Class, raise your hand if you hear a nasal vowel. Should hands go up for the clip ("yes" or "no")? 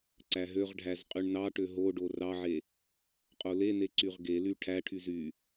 no